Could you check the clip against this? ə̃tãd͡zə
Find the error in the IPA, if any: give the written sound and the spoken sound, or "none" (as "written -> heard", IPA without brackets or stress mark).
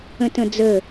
ã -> ə̃